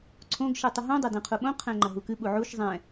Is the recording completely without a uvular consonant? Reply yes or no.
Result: no